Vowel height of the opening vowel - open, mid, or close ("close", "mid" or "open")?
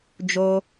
mid